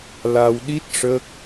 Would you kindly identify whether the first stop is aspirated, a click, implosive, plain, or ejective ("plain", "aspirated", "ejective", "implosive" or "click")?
implosive